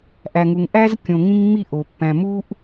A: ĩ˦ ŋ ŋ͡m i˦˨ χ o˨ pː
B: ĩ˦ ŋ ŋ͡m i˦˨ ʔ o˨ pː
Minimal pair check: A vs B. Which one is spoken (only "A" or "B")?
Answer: B